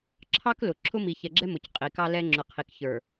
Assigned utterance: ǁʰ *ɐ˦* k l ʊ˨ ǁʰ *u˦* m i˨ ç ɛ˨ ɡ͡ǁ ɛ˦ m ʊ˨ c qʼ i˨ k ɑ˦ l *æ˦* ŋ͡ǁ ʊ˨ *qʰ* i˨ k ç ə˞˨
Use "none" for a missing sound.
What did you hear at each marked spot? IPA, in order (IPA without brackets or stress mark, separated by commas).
ɑ˦, ʊ˦, ɛ˦, qʰ